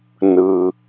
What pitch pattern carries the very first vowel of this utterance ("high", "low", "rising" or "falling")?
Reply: low